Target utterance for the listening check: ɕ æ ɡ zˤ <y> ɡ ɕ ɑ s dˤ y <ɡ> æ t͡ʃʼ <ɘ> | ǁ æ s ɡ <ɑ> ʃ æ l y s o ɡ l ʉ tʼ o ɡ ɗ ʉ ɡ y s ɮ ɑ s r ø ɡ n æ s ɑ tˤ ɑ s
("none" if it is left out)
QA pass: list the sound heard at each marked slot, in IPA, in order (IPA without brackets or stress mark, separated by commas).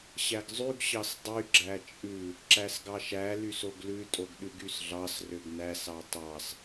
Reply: y, ɡ͡ǁ, ʉ, ɑ